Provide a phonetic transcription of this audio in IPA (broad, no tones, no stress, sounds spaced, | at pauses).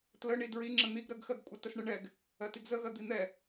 t l ə ɳ i d ɹ i ŋ͡ǁ ə n̪ i ɡ ɾ ɜ ɡ x ɜ ɡ kʷʼ ə t ə s ɳ ə ɳ ɛ ɡ | ɜ t i ɡ z ə ɣ ɜ d̪ i n̪ ɛ